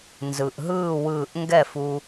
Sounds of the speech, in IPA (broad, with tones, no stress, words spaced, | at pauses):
nzɯ˩ʔɦɯː˥˨ wɯː˧˩ʔ ŋɡɛ˥˨fu˧